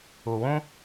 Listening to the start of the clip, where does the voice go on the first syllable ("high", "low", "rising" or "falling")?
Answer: low